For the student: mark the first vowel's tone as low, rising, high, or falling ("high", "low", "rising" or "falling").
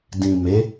low